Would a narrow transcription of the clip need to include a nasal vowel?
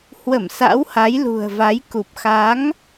no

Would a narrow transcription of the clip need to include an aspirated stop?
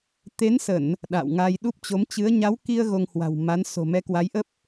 no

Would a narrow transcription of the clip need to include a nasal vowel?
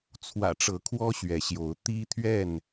no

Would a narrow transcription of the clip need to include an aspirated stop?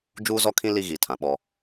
yes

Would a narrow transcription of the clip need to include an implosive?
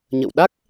yes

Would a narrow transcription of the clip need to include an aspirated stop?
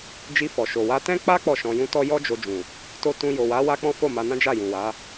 no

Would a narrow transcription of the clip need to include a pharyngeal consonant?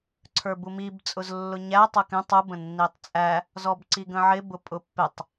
yes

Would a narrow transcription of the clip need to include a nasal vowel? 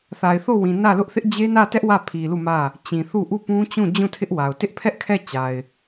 yes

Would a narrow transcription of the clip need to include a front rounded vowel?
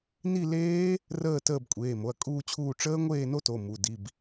no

